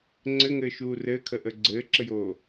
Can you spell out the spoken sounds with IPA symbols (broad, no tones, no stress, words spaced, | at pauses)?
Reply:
ŋ͡ǀɘŋɘːʃuː rɘːkʰəʔə ɡ͡ǀɘːǁɘjoː